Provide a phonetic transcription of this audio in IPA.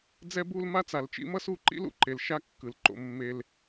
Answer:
d͡z ɛ˦ b u˦ l m a˦ t͡s a˨ l t͡ʃ ḭ˦ m ʌ˦ s u˦˨ ǃ ḭ˦ l ṵ˨ ǃ e˨ l ʃ a˦ kː ɯ˨ l ǃ o̰˦˨ mː e˦ l

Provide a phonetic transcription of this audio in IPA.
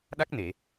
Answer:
ɗ a˦˥ k̚ n e˨˩˨

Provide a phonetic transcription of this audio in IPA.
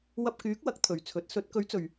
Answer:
w ɐ˧ p̚ k yː˨˥ k̚ w ɐ˨˥ k̚ t̪ʰ ɵ˨ ɥ t͡sʰ ɵ˨˥ t̚ s ɵ˨˥ t̚ k ɵ˨˥ ɥ t͡s ɵ˨ ɥ

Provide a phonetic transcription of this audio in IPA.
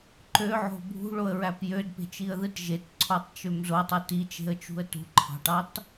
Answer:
ǃ ø ʕ o̤ bʱ ṳ ɭ o ə̯ ɹ æ p j ø d p e̤ t͡ʃ i ə̯ ð ɯ t ʒ e t ǀʰ o tˤ t͡ʃ ø m z o tˤ ɯ t i t͡ʃ e̤ ə̯ t͡ʃ ṳ ə̯ t ṳ ǃʰ ɑ̤ ʈ ɑ t

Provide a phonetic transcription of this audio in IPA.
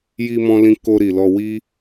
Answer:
j i˧ m ɔ̃˧ l ĩ˧ k o˧ ɾ i˨ l ɔ˧ w i˦

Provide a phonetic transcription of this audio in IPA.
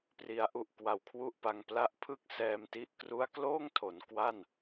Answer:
p r i˩˦ a̯ ʔ u˨˩ ʔ k w a˨˩ w kʰ w u˥˩ ʔ p a˧ ŋ p l a˦˥ ʔ pʰ ɯ˥˩ k̚ s ɛː˧ m t i˦˥ ʔ k r u˦˥ a̯ k l oː˥˩ ŋ tʰ o˩˦ n k w a˥˩ n

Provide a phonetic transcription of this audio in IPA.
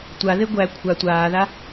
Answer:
tʷ a ð e ɡʷ æ kʷʰ a tʷ aː ð a

